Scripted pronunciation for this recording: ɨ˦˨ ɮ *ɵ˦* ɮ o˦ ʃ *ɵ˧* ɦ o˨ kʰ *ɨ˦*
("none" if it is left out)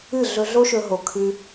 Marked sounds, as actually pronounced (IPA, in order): ɵ˧, ɵ˧, ɨ˧

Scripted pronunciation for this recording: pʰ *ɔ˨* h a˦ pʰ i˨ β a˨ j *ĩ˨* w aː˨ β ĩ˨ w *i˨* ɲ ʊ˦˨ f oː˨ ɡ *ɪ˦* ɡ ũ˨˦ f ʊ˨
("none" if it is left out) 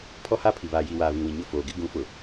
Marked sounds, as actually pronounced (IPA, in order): ɔ˦, i˨, ĩ˨, ɪ˦

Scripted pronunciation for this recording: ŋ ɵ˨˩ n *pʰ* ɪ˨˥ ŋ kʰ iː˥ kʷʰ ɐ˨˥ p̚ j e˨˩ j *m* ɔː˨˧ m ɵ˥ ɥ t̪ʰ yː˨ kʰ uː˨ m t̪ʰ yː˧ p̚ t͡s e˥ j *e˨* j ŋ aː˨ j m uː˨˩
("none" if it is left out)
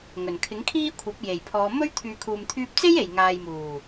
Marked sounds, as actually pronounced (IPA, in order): kʰ, pʰ, e˨

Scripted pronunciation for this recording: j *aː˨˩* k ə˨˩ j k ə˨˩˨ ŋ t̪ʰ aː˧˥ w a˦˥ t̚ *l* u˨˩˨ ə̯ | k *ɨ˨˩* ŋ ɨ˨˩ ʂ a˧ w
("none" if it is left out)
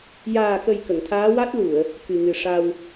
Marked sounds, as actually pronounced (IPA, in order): aː˨˩, l, ɨ˨˩

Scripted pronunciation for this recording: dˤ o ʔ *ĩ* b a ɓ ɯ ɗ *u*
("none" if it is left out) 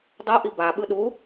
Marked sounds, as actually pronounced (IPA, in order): i, u

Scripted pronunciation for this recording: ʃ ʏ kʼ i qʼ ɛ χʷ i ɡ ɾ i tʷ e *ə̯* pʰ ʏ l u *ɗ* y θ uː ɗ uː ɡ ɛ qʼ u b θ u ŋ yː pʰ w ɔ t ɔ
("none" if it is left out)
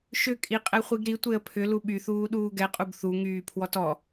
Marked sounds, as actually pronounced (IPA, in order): ə̯, ɓ

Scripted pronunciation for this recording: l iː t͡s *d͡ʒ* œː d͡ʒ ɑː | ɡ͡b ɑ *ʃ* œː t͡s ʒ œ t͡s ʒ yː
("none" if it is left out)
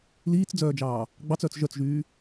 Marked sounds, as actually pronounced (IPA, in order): d͡z, t͡s

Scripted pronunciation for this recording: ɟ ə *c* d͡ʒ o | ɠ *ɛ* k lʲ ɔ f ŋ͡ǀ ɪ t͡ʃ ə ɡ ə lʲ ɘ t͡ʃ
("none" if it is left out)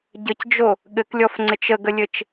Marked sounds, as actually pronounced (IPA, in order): c, ɘ

